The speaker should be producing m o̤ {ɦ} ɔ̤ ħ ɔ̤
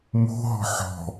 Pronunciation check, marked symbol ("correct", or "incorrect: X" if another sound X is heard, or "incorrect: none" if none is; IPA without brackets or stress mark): correct